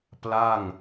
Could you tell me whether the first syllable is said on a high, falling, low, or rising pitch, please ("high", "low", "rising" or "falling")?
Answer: falling